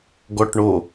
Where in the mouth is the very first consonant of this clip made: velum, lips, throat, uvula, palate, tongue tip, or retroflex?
velum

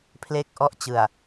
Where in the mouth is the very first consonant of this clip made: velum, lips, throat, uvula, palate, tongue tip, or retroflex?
lips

